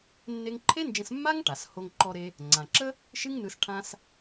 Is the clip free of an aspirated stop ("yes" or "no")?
no